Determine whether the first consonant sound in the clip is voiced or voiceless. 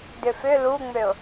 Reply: voiced